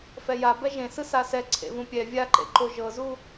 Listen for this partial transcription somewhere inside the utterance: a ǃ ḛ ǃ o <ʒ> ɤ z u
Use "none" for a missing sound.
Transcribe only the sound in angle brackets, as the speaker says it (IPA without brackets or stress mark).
ʒ